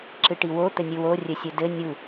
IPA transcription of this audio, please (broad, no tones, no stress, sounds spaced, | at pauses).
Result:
ǁ ɨ ʈ i w o t̪ ɘ nʲ ɨ w o rʲ ɘ sʲ ɘ d ɘ nʲ u